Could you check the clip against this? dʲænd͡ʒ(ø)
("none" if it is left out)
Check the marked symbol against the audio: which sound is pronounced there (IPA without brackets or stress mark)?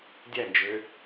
ø